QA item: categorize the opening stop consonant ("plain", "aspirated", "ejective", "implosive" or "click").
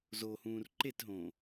click